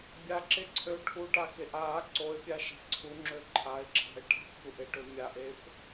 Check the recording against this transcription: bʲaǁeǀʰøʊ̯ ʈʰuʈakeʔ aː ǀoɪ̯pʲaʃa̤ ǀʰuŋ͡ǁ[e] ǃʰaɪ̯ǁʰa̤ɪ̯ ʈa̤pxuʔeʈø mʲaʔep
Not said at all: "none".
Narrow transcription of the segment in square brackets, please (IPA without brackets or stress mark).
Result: ø